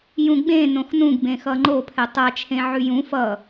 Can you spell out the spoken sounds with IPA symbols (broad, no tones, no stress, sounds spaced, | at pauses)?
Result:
j ũ ɡ͡b ẽ n õ x n ũ ɡ b ẽ x ʌ ŋ͡ǃ o pʰ ɛ tˤ a t͡ʃʰ ẽ ʕ ʉ j ũ f ʌ